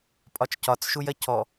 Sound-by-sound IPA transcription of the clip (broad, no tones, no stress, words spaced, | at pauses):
pʼɒt͡ʃcɒt͡sʃujɐ cʰɔ